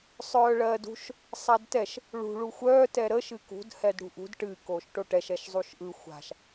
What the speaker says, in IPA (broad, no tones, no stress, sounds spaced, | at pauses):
sˤ œː ɭ ɜː d ṳ ʃ | sˤ a d t ɛ ʃ | ɭ ṳ ɭ u xʷ œː t ɛ ɾ ə ʃ ɨ k ṳ d h ɛ d ɽ ṳ ʔ ṳ d ʈ ɨ k oː ʃ ʈ o ʈ ɛ ʃ ɛ ʃ zˤ u ʃ ʔ ɯ xʷ a̤ ʃ